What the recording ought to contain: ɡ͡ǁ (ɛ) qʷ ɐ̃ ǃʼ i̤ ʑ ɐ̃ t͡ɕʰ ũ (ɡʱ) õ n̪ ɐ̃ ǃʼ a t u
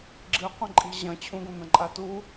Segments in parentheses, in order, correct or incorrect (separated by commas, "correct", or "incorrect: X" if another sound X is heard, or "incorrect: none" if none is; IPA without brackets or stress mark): incorrect: ɨ, incorrect: ɡ